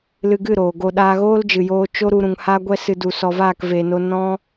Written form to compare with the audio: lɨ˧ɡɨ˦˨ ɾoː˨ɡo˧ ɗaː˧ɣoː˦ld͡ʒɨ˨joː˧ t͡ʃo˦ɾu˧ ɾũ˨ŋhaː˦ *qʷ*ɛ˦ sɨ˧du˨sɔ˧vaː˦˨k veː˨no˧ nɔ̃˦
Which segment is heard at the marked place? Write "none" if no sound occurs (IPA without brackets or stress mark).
ɡʷ